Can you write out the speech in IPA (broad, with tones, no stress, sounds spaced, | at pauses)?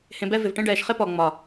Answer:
h ẽ˧ b ɛ˦ v ɪ˨ v ʈ ẽ˧ ɖ ɛː˨ ʃ χ ɪ˦ p ɔ˨ ŋ͡m ɒ˨